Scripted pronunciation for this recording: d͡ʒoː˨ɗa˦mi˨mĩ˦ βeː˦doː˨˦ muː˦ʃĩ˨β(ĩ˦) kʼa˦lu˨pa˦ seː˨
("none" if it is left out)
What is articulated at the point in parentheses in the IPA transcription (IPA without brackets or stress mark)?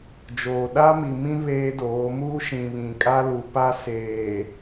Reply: ĩ˨